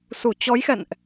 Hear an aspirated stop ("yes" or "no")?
no